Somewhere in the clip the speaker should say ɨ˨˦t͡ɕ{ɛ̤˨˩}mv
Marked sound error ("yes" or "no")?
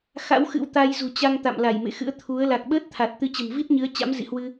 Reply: yes